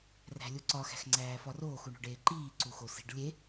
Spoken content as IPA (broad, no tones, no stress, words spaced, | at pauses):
ræ̤lʲuǀɒ xæ̤xŋ͡ǀæːfɒroːx uɳo̤ɖeːǃiː ǀuxosi̤ɖ lʲe